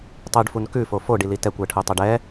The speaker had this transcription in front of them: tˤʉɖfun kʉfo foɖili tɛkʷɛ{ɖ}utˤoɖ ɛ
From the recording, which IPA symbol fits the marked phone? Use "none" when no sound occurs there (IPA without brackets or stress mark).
ʈʰ